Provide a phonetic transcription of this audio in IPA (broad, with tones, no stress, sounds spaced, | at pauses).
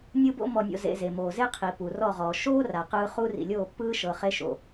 nʲ ɯ˦ b o̰˦ m ɔ˧ nʲ o̰˧ z ḛ˧ z e˨ m oː˨ z e˦ qʰ i˨ p u˨ r ɔ˦˨ ʁ ɔː˨ ʃ oː˦ r a˨ q ɯː˧ χ u˦ r ḭ˨ lʲ oː˦˨ pː ɯː˦ ʃ ɤ˨ χ e˧ ʃ o̰˨